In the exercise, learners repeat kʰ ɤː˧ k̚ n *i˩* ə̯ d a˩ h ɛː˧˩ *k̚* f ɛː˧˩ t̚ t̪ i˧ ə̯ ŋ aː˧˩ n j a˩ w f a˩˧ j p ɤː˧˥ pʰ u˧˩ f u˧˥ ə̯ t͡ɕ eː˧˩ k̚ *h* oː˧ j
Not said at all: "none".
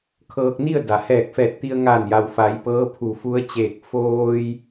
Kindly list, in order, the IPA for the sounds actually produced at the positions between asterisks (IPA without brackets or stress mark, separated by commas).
i˥˨, k̚, f